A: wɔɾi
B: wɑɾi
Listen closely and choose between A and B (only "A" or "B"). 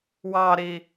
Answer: B